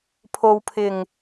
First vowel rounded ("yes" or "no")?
yes